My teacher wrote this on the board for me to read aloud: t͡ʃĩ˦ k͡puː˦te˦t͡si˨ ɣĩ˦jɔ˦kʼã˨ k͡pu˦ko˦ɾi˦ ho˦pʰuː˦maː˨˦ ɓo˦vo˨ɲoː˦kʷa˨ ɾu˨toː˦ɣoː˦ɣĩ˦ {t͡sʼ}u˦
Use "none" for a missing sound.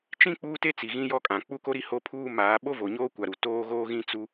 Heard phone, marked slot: t͡s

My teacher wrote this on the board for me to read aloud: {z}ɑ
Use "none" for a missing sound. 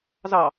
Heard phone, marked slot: z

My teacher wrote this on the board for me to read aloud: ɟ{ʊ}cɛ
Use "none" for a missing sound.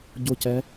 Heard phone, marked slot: ʊ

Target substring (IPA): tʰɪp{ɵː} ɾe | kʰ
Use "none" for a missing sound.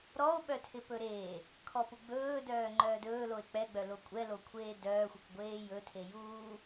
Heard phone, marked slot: ɵ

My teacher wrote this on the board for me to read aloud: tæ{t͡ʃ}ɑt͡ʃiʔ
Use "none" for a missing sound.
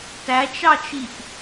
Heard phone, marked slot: t͡ʃ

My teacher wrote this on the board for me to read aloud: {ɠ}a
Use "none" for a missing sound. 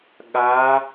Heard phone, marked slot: ɠ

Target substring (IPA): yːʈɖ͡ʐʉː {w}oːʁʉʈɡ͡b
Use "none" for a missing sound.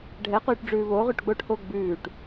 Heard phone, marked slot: β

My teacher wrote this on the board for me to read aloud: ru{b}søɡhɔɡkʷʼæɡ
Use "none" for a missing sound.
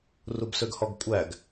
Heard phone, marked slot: b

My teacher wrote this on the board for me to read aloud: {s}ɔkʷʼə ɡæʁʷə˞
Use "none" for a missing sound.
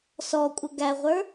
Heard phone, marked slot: s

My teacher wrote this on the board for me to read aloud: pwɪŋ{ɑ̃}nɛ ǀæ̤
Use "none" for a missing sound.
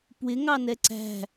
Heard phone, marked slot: ɑ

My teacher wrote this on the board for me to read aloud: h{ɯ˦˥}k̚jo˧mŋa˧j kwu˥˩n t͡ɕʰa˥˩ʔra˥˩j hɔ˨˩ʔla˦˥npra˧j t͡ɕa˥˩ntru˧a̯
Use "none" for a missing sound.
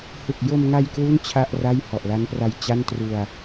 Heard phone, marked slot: ɯ˨˩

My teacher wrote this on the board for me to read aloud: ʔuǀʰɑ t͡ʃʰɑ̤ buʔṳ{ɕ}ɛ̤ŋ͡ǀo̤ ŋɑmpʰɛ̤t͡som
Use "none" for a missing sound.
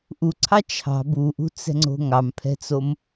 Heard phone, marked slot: t͡s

